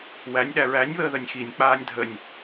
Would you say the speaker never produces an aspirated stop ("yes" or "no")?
yes